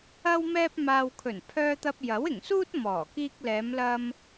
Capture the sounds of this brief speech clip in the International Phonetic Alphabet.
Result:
ɐ˥ w m ɛː˥ p̚ m aː˧ w kʰ ɵ˨˩ n pʰ œː˧ t̪ ɐ˧ p̚ j ɐ˨˥ w ɪ˨˩ ŋ s uː˥ t̚ m ɔː˨˩ k iː˧ k̚ l ɛː˨˧ m l ɐ˧ m

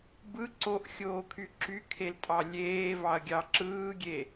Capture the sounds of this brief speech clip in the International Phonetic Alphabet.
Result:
b ɯ ǀ o ʔ xʲ oː kʰ y ǁ y kʰ e l tʼ ɑ lʲ eː v ɑ ɐ̯ ɡʲ ɑ ǁ ɯː ɡʲ e

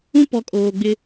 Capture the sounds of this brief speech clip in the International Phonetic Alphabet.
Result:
ũ˦ p ɔ˨ kʼ oː˨ ɡ͡b ɪ˦

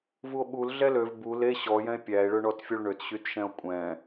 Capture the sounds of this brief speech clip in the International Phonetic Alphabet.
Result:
v u o̯ ɓ u l ɮ ɛ l ø v b u l e ɕ ɔ j ɛ̃ e̯ pʲ æ e̯ ɭ ø ɳ ɔ t fʲ o ɭ ɳ ø t ɕ y t ʃ ɛ̃ o̯ kʷʼ ɛ̃

